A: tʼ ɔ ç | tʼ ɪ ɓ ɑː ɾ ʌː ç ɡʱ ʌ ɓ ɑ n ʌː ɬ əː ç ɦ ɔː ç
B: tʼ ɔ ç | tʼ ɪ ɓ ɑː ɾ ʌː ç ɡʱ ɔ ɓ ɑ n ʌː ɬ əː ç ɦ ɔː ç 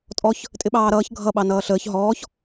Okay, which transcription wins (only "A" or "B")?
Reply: A